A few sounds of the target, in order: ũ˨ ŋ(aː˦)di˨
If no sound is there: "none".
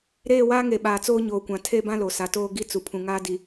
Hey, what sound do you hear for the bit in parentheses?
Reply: aː˦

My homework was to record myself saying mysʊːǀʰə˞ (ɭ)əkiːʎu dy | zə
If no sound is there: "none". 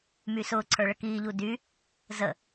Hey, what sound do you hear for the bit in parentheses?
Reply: ɭ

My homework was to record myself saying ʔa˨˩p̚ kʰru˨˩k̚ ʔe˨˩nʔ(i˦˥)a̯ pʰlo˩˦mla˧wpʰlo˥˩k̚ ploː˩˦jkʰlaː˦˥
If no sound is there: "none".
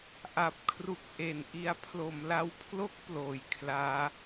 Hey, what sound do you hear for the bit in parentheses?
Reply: i˧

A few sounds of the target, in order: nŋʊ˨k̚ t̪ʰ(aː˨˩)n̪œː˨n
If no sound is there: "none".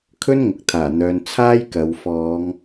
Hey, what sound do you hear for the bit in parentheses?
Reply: aː˨˩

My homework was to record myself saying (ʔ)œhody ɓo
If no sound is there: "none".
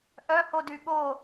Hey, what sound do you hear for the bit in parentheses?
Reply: ʔ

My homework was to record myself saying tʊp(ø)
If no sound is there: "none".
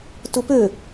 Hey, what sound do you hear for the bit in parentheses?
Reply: ø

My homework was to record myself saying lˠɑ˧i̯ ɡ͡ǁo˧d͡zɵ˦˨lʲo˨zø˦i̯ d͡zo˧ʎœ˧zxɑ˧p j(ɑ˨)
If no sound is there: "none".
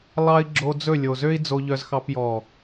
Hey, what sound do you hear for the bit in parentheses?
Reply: ɔ˨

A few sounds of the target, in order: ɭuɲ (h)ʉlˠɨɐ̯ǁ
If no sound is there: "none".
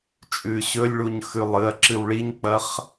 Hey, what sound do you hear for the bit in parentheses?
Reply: x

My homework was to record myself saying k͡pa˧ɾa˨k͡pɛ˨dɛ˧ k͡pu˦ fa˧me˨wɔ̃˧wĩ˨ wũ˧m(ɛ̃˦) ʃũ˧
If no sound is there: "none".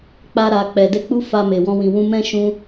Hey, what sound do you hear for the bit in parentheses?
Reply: ɛ̃˦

